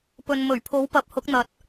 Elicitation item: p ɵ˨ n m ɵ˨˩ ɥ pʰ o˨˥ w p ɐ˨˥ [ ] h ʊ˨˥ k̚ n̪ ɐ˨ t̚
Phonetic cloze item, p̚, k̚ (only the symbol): p̚